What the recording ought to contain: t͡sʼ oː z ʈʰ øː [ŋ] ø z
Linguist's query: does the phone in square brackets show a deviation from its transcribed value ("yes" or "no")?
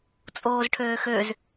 yes